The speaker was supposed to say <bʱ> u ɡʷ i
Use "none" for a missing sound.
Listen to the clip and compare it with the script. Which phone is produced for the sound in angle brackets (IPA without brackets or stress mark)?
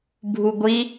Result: bʱ